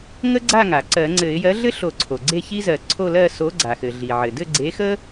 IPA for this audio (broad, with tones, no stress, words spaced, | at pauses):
ŋə˥ɡ͡ǀa˥˨ŋa˩ ǀɜ˨˩˦ŋ͡ǀɘ˨˩˦ɪ̯ jɜ˨˥ɮɘ˥ ɬo˨˩˦ǀʰo˩ ɡ͡ǀe˥˨çi˥zɜ˨˩˦ ǀʰo˥˨lɜ˥˨ so˨˥ɡ͡ǀa˩xɘ˩ ɮi˩ʕɘ˩ dɘ˥˨ɡ͡ǀe˨˥xə˥